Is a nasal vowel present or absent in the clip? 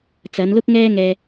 absent